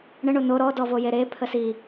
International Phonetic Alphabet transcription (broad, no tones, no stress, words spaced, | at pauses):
ɳə ɳono ɾɔ dɔvojeɾe pʰəsi